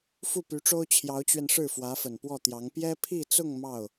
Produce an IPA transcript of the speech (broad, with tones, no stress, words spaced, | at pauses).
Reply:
fu˥˩py˧˥ʈ͡ʂo˥ʊ̯ t͡ɕʰjɑ˧˥ʊ̯t͡ɕɥɛ˧n ʂɻ̩˥˩fwä˧˥fə˨˩n pwɔ˥˩t̪jɑ˧˥ŋ pjɛ˥pʰi˥˧t͡sʊ˥˧ŋ mɑ˥˩ʊ̯